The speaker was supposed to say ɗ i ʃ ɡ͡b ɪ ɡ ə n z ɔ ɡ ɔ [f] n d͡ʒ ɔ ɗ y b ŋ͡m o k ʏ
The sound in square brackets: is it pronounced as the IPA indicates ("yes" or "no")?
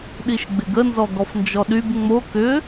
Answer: yes